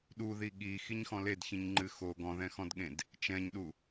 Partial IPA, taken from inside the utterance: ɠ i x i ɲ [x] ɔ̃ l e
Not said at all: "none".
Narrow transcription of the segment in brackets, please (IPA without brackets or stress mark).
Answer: x